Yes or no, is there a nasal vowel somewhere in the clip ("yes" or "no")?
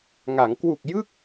no